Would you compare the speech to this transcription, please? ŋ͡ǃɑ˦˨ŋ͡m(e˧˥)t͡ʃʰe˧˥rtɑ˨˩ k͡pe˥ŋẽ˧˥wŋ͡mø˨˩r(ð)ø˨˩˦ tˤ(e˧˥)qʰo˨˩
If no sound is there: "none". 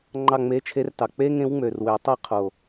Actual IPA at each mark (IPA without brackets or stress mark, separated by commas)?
e˧˥, w, e˦˨